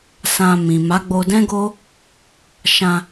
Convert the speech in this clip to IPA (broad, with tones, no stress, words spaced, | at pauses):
sã˧mĩ˨ ma˨˦ ɡ͡bo˧dɛ̃˦ɡo˦ | ʃã˧